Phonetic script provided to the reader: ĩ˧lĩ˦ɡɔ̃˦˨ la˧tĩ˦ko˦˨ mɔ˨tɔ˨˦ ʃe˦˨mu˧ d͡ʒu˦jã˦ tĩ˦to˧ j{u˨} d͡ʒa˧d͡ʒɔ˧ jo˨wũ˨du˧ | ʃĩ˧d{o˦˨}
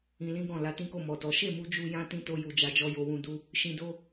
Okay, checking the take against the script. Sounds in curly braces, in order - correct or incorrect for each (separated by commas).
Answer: correct, incorrect